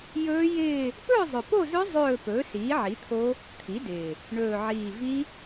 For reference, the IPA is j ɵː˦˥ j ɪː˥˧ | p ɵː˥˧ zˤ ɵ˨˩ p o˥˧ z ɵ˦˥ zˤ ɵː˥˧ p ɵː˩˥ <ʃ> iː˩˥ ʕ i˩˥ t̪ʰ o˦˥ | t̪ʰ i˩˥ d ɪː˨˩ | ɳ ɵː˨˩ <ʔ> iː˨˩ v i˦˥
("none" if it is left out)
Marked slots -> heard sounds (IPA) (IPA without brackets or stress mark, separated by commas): s, ʕ